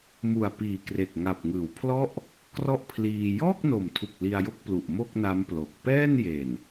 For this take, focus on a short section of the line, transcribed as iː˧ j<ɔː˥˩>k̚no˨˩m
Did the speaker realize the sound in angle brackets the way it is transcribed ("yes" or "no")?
yes